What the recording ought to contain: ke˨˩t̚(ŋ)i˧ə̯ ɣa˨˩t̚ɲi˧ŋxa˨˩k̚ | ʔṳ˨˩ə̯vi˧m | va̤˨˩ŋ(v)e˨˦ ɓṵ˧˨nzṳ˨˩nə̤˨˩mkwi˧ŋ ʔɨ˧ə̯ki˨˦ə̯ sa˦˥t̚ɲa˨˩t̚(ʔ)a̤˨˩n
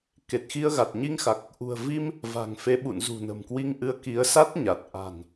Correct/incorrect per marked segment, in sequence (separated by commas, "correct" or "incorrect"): incorrect, incorrect, correct